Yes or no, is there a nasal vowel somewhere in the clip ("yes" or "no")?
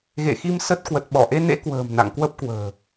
no